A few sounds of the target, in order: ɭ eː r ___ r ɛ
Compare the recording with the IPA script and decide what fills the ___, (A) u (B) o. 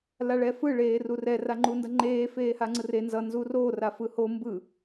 A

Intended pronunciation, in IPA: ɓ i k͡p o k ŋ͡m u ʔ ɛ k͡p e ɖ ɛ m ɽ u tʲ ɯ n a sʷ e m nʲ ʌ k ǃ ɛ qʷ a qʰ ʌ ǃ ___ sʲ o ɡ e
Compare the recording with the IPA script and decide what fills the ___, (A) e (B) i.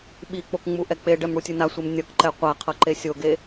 A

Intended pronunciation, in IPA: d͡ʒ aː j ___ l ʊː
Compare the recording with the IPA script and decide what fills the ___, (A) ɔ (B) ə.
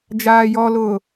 A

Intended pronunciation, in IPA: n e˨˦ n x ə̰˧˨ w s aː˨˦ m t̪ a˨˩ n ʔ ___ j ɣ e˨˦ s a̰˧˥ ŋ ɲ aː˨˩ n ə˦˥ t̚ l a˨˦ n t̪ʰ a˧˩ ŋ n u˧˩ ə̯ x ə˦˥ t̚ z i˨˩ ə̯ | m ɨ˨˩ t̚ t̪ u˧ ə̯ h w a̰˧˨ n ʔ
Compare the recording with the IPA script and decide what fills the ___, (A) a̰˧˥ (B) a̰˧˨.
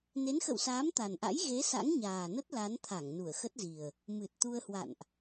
A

